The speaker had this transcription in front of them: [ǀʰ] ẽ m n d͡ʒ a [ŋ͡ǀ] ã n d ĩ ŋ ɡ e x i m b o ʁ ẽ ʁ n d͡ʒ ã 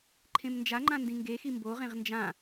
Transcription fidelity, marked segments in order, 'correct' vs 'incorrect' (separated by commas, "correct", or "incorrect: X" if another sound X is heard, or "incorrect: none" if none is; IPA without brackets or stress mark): incorrect: ǃʰ, incorrect: ŋ͡ǃ